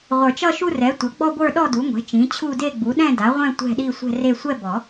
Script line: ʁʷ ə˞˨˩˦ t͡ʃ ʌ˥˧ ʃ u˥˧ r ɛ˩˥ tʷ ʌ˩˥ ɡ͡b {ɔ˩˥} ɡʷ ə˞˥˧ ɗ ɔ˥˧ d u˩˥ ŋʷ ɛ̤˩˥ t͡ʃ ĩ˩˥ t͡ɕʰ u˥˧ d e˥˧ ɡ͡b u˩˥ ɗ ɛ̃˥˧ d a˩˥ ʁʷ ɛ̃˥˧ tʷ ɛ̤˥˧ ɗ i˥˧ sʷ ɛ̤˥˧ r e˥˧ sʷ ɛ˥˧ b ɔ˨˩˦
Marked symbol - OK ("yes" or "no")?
no